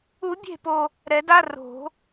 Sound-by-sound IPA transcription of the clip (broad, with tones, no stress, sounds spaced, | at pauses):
u˨˩˦ bʲ e̤˦˨ p o˨ | ɾ ɛ˨˩˦ d a˧˥˧ r o̤˨˩˦